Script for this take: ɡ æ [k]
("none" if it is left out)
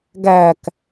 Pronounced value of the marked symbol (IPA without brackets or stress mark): k